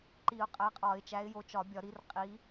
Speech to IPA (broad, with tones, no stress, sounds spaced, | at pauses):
ǃ i˨˩˦ ʊ̯ qʼ æ˨˦ qʼ ɒ˨˩˦ ɪ̯ t͡ʃ æ˨˦ ɪ̯ j o˨˦ t͡ʃ ɒ˨˩˦ bʲ ɒ˨˩˦ ɾ i˨˦ r qʼ i˨˦